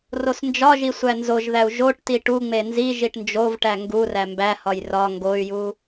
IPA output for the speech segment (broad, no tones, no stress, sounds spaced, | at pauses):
r o s n d͡ʒ ɒ ʒ i sʷ æ n z o ʒ ð æ u̯ ʒ o ʈ t i ʈ u ŋ͡m e n z i ʒ i ʈ n d͡ʒ o v ʈ æ ŋ ɡ u r æ m b æ h ɒ j r ɒ ŋ ɡ o y̯ j u